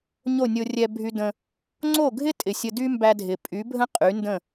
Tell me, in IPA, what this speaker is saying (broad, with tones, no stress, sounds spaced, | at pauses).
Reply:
ɲ o˥˩ nʲ o˧ rʲ ɛ˧ bʱ y˧ d ə̃˧ | ŋ͡ǀ o˥˩ ɡʱ ɪ˥ tʼ ɪ˩ sʲ ə˧ d y˥ m b æ˧ dʱ ɪ˩ pʼ y˩˥ bʱ ə̃˥ qʼ y˩˥ n d ə̃˥˩